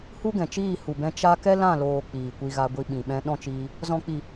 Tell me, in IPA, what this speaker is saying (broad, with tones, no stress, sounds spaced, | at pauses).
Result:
h u˦ ɡ ɛ̃˨ t͡ʃ iː˦˨ h u˨ b ɛ̃˧ t͡ʃ a˦ k ɛ˦ l ã˦˨ l oː˨ k͡p iː˨ kʷ i˧ ɣ a˧ ɡʷ i˧ ɓ ĩ˨ ɓ ɛ̃˧ ɗ ɔ̃˦ t͡ʃ iː˧ | z ɔ̃˨ k͡p i˨